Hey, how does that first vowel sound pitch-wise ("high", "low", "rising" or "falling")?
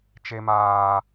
high